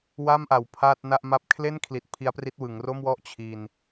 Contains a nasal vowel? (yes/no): no